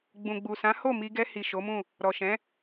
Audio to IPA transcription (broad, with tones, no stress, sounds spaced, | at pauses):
ɡ͡b ũ˨ ɡ͡b u˨ s ã˨˦ h o˦˨ m i˧ ɡ ɛ˧ h i˨ ʃ o˨˦ m ũ˦˨ | ɾ ɔ˨ ʃ ɛ̃˨˦